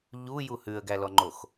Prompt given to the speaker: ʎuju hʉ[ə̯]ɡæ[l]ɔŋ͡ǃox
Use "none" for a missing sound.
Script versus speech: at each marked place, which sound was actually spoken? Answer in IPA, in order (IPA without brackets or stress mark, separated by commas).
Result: ə̯, l